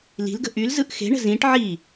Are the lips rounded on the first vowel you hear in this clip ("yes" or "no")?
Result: no